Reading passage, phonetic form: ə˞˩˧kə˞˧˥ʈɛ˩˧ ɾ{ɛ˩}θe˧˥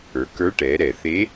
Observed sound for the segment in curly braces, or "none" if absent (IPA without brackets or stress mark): ɛ˩